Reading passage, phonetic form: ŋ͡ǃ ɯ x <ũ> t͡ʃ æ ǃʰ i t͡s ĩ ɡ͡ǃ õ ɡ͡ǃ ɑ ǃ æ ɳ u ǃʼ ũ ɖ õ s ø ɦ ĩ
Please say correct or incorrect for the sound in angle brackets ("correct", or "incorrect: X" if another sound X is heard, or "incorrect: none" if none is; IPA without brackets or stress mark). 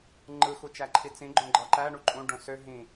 incorrect: u